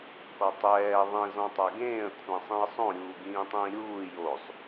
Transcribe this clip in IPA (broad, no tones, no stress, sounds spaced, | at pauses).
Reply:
k ɔ tˤ ɛː ðˤ ĩ z ɔ̃ tˤ a ɡ ẽː ə̯ kʷʰ ã sˤ ĩ ə̯ sˤ õ ɾʲ uː ɡ ĩː tˤ ĩː ɾʲ uː j o sˤ